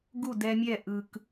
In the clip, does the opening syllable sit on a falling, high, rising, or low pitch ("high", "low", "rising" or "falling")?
falling